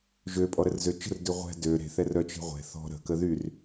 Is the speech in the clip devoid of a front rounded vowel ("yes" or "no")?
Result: no